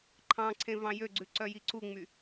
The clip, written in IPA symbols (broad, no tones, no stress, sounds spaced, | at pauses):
ǃʰ ɑ̃ ǀʰ ẽ v ɑ̃ j ø ɡ͡ǀ ʉ ǀ œ j i ǀ u ŋ͡m y